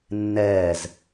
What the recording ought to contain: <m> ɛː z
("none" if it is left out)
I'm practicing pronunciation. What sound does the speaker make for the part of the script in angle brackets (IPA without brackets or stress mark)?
nː